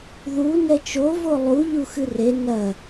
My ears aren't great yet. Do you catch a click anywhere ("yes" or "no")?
no